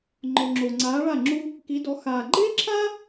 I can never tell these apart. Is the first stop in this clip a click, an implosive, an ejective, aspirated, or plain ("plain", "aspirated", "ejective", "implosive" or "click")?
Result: click